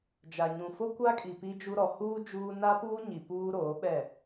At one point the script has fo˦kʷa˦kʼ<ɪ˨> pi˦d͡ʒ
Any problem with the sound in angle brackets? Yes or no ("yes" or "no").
yes